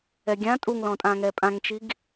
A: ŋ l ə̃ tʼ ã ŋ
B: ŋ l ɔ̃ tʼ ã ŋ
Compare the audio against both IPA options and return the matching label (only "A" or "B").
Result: B